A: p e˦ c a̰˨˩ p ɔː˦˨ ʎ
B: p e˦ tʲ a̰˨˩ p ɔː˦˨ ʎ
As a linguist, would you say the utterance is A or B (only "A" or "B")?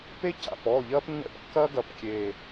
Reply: A